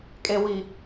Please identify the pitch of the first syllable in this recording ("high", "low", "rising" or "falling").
low